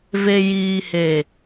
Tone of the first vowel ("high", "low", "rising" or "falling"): low